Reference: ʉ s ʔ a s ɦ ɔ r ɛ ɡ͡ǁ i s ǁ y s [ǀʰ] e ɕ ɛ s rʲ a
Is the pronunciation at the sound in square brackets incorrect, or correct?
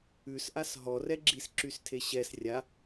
incorrect: tʰ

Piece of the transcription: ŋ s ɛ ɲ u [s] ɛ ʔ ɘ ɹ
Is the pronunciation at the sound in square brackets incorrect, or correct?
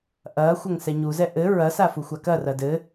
incorrect: z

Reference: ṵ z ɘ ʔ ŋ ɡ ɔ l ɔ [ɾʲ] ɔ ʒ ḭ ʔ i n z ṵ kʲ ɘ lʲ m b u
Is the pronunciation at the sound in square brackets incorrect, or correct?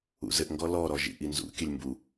incorrect: ɾ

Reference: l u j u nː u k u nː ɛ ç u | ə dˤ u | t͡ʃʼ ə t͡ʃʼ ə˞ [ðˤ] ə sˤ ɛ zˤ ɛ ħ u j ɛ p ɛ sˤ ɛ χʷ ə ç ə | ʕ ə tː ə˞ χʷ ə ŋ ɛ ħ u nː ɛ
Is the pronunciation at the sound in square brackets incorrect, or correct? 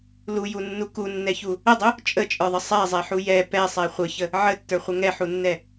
correct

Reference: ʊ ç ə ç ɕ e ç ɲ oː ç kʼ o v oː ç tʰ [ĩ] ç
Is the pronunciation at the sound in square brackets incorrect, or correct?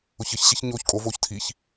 incorrect: i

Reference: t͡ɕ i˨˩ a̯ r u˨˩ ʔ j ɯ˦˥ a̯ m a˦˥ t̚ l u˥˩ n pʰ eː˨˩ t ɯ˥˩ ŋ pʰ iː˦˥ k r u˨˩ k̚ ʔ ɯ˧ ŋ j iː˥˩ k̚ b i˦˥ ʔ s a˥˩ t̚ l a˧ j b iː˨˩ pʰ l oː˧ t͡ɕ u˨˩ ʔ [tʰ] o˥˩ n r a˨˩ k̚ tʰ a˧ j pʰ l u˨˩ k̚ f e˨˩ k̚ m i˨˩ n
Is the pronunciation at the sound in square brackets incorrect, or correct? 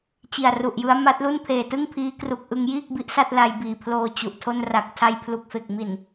correct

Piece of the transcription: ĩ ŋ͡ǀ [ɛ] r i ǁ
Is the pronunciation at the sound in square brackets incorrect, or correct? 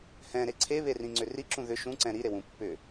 incorrect: ʏ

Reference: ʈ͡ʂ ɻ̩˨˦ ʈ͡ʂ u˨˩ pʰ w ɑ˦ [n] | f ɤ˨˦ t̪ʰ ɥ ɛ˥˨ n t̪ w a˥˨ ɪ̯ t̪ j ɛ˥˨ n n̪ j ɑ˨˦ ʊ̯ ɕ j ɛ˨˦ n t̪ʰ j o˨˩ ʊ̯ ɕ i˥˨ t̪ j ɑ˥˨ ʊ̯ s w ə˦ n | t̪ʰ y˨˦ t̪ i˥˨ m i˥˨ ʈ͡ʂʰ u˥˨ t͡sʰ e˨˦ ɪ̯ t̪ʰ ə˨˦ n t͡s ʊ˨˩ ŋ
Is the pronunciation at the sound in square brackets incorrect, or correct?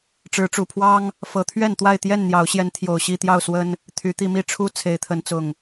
incorrect: ŋ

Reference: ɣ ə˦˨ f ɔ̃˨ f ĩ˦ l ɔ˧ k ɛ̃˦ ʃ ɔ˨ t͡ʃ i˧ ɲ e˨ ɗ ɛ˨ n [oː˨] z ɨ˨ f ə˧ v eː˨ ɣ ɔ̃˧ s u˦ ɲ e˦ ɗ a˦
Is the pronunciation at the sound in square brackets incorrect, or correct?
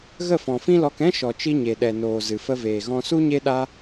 correct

